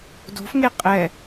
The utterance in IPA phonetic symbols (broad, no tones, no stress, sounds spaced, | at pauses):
d o̤ f ŋ e qʼ ɛ